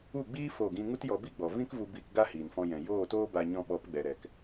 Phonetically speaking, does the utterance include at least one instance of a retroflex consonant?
no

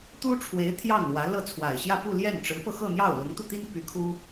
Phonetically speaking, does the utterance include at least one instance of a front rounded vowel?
yes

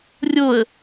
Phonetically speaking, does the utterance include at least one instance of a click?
no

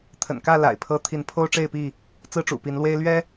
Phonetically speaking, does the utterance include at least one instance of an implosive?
no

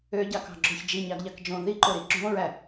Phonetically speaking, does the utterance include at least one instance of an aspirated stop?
no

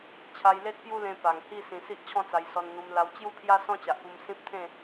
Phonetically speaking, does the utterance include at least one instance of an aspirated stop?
yes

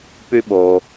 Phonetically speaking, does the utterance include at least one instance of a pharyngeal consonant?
no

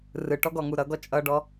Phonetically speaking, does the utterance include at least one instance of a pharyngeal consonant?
no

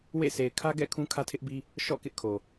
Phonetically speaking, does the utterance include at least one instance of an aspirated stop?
yes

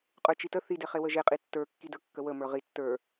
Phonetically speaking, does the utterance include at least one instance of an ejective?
yes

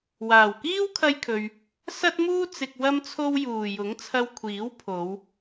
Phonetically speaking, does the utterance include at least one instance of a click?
no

